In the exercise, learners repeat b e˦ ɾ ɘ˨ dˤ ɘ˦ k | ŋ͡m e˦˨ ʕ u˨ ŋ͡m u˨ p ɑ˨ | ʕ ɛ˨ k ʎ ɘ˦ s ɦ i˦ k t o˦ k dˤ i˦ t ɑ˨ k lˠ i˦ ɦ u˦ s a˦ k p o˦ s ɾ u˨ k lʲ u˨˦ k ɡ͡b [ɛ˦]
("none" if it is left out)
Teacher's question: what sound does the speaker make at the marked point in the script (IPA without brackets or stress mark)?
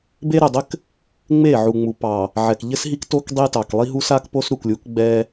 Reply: ɛ˦